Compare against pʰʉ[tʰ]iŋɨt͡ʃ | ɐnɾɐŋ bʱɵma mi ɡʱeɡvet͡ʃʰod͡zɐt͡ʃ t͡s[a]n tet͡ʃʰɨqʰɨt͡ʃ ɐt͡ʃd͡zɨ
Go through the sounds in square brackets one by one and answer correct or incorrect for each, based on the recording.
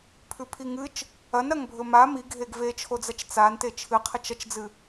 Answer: incorrect: pʰ, correct

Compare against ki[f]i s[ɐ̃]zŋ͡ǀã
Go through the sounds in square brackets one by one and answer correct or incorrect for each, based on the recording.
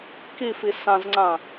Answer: correct, incorrect: ã

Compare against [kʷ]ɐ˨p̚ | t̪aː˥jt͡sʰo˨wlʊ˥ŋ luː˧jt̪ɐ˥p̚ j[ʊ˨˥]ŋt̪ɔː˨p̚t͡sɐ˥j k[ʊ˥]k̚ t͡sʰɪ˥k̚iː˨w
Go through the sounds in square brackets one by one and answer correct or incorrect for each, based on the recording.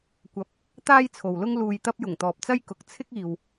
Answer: correct, incorrect: ʊ˨˩, incorrect: ʊ˨˥

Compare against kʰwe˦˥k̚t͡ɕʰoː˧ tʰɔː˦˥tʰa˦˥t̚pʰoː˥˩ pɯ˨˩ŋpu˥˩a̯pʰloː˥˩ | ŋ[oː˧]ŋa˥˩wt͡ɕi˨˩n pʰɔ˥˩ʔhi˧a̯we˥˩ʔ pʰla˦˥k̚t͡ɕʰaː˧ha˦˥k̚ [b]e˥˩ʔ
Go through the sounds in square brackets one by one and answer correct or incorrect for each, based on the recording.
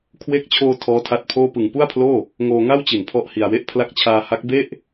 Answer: correct, correct

